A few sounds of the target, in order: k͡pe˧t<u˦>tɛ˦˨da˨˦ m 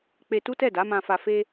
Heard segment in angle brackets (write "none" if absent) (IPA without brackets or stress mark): u˦